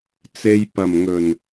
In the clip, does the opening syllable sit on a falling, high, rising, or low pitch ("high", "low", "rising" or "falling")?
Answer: low